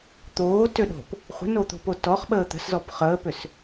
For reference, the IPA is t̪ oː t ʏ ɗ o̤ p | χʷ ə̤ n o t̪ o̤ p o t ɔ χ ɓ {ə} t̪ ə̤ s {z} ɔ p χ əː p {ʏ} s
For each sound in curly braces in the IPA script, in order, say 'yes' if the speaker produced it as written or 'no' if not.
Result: no, yes, yes

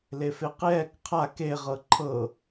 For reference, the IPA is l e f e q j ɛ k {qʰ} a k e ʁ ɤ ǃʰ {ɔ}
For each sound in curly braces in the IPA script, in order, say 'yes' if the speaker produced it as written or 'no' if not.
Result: yes, no

